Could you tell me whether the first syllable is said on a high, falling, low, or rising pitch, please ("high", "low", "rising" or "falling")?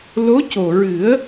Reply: rising